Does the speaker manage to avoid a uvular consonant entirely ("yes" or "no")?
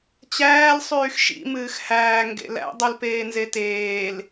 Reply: yes